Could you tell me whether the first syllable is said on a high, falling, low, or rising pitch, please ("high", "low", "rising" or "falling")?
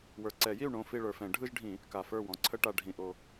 low